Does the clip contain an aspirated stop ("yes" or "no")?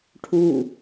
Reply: yes